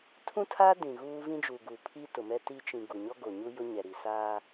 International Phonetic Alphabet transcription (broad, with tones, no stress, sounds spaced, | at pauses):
tʰ ũ˦ tʰ aː˦ d ĩ˨ ɣ uː˦ v ĩ˦ d͡ʒ uː˨ ɡ u˨ pʰ i˦ t ʊ˨ m ɛ˦ t i˦ t͡ʃ ĩ˨ ɡ u˨ ɲ ɔ˦ ɡ o˨ ɲ u˦ j ʊ˦ ɲ ɛ˨ ɾ i˨ s aː˦